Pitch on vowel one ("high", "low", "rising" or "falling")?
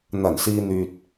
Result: low